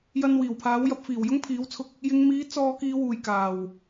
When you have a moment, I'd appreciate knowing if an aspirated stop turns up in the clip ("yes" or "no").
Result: yes